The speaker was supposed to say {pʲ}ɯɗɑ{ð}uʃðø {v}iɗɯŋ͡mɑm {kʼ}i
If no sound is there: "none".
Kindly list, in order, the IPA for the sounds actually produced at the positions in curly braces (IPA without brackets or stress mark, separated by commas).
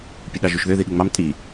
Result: pʲ, ʒ, ð, tʼ